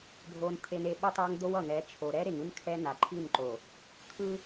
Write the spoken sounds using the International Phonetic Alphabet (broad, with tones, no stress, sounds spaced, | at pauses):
bʱ o˨ n t̪ʰ e˨ n e˨ ɓ ʌ˦ tˤ a˦ ŋ d̪ o˦ w ʌ˨ ŋ ɛ˨˦ t͡ʃʰ o˨ ɾ ɛ˦ ɾ e˨ ŋ ɯ˦ n kʰ ɛ˦ n a˨ ǃʰ i˦˨ n ǃ o˨ | kʰ ɯ˦